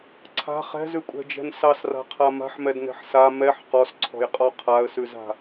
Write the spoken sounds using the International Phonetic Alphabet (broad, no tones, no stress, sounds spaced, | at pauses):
ǀʰ a̤ χ ɛ̤ z ʉ kʷʼ ɛ̤ d͡ʒ ɛ̤ n s ɑ s r a̤ qʰ a m a̤ ħ m ɛ d n ɛ̤ ħ s a m ɛ ħ q ɔ s ǀʰ ɔ̤ j qʼ ɔ qʰ a ə̯ s ʉ z a̤